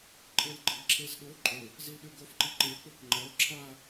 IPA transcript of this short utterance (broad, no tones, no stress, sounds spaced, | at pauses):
ǃʼ e l ɡ͡ǃ e ɡ ǁʰ e z ɗ o ǃʼ ɵ | z i l ɗ ʉ ɡ o f ǃ i ǃ e k͡p ɵ k ŋ͡ǃ ɐ o̯ ǁʰ a